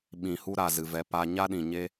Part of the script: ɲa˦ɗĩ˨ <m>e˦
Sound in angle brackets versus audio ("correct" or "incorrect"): incorrect